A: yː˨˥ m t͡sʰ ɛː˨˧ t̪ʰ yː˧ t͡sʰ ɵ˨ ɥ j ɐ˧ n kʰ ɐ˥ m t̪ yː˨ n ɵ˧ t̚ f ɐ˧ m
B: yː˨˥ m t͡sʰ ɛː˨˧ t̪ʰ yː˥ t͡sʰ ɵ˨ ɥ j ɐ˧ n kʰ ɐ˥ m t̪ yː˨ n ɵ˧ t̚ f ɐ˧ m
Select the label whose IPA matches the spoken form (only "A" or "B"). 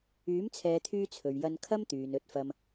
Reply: A